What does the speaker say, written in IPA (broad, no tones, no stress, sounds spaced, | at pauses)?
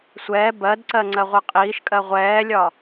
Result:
sʷ ɛː b ɜ d ǀ ɜ ŋ͡ǀ ɜ ʁʷ ɜ qʼ iː ʃ kʼ ɜ ʁʷ ɛː lʲ ɒ